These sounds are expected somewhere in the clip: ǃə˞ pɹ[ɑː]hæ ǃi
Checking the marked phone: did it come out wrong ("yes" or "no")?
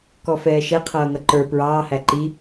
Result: no